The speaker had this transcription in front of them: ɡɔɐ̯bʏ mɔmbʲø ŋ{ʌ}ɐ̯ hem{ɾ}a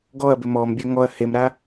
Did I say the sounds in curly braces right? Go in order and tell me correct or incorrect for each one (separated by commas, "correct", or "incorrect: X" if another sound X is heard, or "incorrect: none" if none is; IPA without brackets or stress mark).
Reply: incorrect: ɔ, correct